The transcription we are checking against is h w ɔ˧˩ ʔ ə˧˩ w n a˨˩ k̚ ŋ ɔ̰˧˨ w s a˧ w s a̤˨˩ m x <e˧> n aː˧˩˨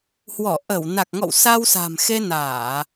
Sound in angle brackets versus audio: correct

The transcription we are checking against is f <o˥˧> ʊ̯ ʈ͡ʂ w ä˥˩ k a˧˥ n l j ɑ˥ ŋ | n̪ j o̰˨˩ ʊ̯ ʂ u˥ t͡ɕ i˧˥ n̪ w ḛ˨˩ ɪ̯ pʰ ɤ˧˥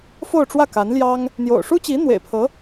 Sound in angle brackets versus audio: correct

